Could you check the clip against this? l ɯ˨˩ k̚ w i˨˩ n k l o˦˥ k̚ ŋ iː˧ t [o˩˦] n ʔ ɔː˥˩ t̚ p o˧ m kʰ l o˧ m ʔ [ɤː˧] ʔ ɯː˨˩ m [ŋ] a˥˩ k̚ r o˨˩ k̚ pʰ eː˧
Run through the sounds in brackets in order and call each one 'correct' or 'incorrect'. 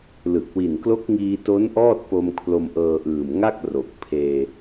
incorrect, correct, correct

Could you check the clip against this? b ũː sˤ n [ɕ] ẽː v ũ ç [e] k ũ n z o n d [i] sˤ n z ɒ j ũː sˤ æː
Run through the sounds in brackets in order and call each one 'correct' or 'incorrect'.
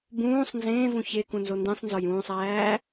incorrect, correct, incorrect

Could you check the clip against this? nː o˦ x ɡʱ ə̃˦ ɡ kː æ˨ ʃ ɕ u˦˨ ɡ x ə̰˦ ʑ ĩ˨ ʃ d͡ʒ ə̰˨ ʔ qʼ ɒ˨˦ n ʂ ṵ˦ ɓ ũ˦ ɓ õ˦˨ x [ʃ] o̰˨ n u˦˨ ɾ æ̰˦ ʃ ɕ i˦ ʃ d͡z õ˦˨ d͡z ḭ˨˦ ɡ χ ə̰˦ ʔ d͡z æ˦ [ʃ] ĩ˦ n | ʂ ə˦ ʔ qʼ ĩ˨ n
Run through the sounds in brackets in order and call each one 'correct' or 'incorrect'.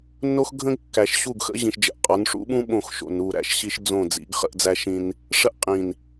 correct, correct

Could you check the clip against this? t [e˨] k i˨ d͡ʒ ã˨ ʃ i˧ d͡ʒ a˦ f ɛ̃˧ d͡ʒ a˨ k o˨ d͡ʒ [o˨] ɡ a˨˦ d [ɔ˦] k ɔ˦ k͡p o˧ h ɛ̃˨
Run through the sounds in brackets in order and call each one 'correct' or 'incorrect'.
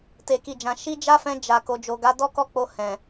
correct, correct, correct

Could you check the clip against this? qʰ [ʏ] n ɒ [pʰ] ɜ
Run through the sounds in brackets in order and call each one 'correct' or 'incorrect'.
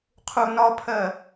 incorrect, correct

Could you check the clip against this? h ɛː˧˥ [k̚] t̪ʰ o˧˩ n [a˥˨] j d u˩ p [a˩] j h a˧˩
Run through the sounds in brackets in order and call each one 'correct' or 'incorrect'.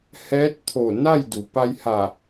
incorrect, correct, incorrect

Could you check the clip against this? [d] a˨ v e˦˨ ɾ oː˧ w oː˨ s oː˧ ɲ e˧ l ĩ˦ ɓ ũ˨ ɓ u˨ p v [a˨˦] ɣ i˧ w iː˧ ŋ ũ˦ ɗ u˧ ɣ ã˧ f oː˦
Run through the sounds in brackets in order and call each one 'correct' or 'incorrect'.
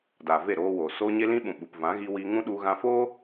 correct, incorrect

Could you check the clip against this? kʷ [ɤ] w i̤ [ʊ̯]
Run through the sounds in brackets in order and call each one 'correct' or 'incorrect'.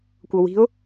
correct, correct

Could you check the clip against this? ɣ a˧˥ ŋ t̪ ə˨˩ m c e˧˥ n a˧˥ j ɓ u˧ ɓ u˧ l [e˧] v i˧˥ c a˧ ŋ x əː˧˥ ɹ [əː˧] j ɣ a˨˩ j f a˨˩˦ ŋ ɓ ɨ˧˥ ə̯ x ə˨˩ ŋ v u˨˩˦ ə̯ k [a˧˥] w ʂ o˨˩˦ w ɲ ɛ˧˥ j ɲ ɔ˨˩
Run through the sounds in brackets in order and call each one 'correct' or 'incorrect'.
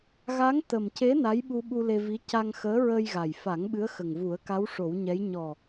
correct, correct, correct

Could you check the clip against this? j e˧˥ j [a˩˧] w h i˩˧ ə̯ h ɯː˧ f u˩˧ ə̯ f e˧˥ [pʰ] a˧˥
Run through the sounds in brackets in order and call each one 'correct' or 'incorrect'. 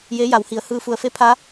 correct, correct

